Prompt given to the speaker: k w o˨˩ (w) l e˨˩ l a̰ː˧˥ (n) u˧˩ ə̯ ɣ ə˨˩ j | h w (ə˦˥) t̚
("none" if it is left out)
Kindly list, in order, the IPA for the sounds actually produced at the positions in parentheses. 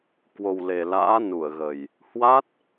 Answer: w, n, a˦˥

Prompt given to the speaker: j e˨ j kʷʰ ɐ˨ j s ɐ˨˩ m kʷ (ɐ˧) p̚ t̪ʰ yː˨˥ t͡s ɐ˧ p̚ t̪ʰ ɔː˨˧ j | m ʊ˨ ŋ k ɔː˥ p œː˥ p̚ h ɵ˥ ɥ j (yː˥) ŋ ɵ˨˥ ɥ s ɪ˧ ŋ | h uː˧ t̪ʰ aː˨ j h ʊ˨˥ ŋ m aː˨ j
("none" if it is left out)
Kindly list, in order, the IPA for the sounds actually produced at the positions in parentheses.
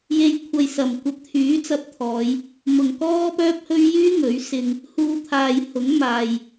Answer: ɐ˧, yː˥

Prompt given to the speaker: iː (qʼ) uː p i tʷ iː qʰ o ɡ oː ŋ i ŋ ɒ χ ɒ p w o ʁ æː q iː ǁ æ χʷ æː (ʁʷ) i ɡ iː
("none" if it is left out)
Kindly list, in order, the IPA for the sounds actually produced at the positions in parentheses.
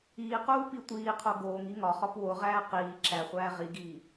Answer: q, ʁ

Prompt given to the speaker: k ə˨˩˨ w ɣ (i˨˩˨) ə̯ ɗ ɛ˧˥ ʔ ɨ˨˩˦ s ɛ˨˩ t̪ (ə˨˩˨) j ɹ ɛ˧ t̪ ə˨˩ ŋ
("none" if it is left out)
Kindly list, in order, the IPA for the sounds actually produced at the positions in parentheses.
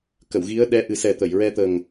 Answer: i˧˥, ə˨˩˨

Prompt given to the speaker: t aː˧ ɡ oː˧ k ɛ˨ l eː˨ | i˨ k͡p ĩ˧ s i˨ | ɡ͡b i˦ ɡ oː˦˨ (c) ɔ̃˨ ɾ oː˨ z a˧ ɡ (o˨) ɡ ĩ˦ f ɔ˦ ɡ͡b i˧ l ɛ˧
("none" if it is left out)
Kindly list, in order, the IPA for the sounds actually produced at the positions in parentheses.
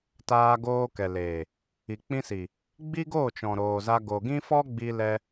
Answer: t͡ʃ, o˨

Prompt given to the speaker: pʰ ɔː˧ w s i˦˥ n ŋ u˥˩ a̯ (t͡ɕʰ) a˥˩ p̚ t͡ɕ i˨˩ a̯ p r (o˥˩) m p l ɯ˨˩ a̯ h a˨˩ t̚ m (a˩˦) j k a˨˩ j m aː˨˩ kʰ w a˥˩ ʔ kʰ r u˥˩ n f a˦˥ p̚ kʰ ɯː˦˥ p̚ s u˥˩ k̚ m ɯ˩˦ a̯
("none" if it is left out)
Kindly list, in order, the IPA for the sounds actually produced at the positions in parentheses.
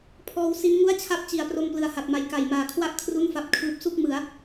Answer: t͡ɕʰ, o˧, a˨˩

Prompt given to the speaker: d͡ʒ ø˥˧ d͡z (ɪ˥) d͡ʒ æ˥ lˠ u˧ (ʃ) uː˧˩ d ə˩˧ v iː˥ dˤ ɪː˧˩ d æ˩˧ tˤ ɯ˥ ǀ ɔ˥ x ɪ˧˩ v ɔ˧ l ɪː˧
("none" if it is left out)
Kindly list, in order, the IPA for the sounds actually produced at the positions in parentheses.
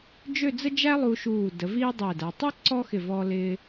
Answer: ə˥, ʃ

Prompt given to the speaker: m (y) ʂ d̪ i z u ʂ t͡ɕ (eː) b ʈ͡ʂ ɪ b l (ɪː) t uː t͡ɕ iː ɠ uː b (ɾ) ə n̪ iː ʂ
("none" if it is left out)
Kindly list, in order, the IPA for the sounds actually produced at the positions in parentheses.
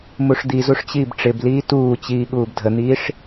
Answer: u, iː, iː, dʱ

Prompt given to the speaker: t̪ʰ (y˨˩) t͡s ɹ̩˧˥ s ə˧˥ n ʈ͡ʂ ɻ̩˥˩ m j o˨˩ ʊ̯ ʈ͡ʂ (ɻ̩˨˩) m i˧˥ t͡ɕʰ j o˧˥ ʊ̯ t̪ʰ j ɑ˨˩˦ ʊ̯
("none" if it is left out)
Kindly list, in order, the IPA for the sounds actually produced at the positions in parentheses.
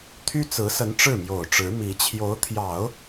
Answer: y˥, ɻ̩˧˥

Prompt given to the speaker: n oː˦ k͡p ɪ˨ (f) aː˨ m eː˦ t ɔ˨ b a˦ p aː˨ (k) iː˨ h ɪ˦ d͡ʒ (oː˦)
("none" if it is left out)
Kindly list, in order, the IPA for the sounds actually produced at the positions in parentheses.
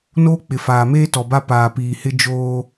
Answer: f, p, oː˦

